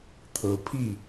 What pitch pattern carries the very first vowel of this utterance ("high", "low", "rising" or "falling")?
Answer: low